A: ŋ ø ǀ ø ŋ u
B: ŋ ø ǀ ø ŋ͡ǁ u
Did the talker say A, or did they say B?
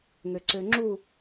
B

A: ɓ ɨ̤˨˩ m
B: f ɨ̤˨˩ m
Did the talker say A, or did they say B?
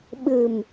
A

